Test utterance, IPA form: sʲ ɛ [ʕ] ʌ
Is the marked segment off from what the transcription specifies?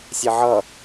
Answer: no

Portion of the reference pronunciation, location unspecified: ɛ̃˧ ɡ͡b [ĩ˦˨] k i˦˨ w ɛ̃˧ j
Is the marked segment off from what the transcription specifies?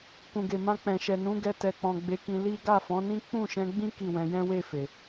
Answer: yes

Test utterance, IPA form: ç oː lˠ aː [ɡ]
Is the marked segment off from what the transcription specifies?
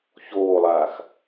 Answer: yes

